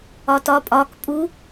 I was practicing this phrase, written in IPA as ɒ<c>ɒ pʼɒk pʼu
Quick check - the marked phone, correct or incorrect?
incorrect